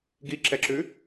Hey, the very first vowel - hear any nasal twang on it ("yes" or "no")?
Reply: no